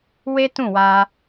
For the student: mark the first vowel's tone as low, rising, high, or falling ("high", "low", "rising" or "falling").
high